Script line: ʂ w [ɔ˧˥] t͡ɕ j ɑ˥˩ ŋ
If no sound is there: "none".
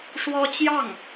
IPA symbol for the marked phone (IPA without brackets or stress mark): ɔ˥